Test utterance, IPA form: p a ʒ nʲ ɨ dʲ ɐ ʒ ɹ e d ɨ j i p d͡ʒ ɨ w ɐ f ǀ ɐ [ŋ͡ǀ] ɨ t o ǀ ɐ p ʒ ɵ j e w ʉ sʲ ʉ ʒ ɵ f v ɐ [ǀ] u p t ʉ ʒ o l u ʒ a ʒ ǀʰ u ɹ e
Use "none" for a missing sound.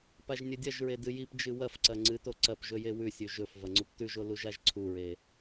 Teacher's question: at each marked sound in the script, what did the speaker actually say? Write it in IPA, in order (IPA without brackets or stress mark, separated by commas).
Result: ŋ͡ǀ, ŋ͡ǀ